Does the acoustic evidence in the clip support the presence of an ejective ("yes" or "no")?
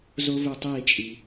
yes